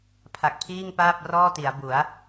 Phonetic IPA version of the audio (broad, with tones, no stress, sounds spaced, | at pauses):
pʰ a˨˩ k̚ pʰ iː˥˩ ŋ p aː˥˩ p̚ r ɔː˥˩ t i˩˦ a̯ b u˩˦ a̯